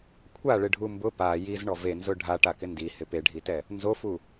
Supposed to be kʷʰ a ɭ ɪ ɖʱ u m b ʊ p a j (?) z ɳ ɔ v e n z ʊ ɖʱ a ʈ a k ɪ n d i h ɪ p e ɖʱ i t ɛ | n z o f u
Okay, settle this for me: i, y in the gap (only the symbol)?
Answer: i